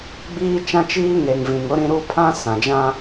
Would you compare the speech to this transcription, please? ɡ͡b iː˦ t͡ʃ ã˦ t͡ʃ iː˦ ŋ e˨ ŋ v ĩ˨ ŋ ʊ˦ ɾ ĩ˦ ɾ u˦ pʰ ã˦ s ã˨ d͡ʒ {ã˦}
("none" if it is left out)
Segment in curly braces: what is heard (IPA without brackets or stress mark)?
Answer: ã˦